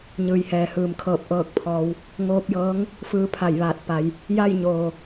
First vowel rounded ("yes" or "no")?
no